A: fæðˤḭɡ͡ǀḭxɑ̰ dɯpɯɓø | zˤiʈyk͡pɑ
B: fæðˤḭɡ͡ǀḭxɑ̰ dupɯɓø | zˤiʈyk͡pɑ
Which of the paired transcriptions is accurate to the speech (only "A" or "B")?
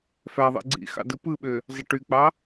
A